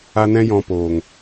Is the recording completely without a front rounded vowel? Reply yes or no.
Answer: yes